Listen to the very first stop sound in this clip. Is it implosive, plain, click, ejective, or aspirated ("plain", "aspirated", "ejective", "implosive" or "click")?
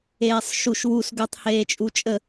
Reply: plain